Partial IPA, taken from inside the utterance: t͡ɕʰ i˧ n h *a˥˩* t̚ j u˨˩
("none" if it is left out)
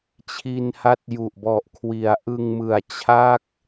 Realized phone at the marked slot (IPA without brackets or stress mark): a˦˥